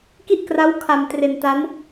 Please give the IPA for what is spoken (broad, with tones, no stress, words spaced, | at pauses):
ki˥˩ʔkra˦˥w kʰa˧mtre˧nta˦˥n